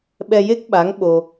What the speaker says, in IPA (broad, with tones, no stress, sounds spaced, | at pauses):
ɓ ɛ˧ j e˦˥ k̚ ɓ a˧˥ ŋ ɓ o˧